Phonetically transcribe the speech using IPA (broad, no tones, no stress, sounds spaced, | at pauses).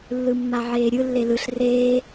lː ɯ mː a ʕ eː ɾʲ ɯ lː e l ɯ ɬ r eː